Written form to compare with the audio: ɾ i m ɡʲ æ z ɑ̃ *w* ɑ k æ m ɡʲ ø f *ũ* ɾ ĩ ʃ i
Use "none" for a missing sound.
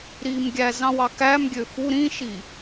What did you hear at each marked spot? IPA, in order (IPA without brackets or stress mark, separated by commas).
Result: w, u